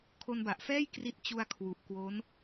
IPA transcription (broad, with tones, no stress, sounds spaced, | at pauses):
kʰ o˧ n b a˨˩ ʔ f ɛː˥˩ j k r i˦˥ t̚ t͡ɕ u˧ a̯ kʰ w u˨˩ ʔ k w o˦˥ n